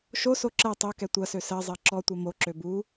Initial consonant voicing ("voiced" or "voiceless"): voiceless